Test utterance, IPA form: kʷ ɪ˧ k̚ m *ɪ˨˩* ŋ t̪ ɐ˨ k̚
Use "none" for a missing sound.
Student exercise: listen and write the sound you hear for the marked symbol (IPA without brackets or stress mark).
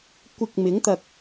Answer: ɪ˨˥